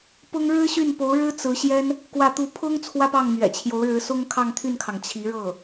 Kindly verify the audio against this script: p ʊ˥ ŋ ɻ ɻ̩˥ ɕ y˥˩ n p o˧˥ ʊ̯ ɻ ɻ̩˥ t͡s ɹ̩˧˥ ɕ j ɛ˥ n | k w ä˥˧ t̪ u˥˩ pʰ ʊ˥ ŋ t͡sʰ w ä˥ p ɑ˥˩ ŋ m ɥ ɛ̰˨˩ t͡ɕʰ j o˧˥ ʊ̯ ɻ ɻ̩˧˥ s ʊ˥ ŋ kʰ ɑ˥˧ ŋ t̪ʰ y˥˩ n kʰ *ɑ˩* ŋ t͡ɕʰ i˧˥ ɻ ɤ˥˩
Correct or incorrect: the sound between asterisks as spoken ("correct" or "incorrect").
correct